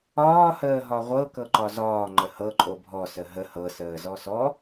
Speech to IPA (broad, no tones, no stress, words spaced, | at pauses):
ɒː həːɦɒʁʷɤ kɤǃɒzɒː ŋ͡ǃəhɤ ǃʼobʱɔ səɦə hɤ səːzɔsɔ